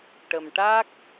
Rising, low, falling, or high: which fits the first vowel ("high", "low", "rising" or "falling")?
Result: low